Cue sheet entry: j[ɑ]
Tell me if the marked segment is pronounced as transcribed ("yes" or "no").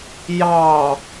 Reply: yes